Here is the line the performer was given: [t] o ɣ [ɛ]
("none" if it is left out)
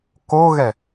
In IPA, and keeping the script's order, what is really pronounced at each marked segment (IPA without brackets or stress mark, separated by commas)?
k, ɛ